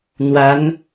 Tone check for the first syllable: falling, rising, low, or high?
rising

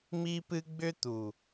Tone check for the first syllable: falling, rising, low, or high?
high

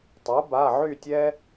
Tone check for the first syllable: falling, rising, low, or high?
rising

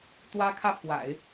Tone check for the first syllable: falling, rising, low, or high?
high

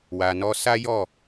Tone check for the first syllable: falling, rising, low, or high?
low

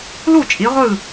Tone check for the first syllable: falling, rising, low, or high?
falling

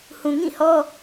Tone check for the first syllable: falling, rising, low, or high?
low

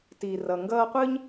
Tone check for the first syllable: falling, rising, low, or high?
low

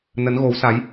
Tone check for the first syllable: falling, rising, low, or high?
rising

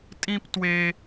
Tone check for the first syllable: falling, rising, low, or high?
high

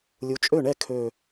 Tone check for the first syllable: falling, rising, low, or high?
rising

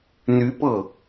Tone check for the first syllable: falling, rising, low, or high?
rising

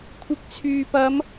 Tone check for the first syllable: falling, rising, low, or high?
rising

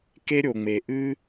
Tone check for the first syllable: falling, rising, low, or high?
high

